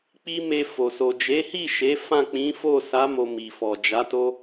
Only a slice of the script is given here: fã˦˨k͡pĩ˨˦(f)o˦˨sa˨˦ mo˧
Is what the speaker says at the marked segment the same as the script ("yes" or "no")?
yes